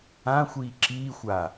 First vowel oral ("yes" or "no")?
no